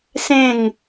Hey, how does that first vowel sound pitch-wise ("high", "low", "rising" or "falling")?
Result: falling